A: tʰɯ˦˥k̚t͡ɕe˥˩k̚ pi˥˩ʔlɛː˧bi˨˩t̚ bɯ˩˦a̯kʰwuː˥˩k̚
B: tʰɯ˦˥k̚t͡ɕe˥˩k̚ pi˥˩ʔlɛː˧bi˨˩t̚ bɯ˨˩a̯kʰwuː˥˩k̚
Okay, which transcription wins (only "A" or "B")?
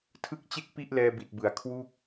A